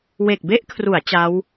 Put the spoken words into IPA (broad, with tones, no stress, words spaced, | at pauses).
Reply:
we˨˩k̚be˦˥ʔkʰru˩˦a̯ t͡ɕa˦˥w